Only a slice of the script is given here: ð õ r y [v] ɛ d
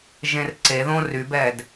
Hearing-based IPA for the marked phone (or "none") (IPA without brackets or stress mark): b